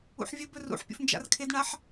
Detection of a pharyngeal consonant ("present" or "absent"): present